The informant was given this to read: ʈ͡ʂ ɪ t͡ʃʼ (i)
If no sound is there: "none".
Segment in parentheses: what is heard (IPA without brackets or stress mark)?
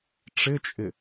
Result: ɪ